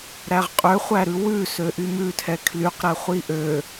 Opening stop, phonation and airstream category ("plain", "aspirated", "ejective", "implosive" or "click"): ejective